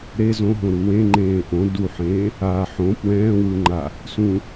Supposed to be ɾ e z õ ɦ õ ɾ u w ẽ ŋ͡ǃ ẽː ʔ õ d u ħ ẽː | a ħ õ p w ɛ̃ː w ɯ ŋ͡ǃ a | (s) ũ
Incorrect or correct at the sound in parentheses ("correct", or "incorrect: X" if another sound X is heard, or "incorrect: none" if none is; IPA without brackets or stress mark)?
correct